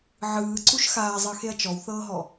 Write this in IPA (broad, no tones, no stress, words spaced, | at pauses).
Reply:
ʕɯːǀuʃ xaːzˤɤxeɐ̯ t͡ʃɔwθɤːɦɔ